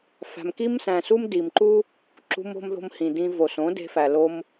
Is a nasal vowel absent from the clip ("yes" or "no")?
no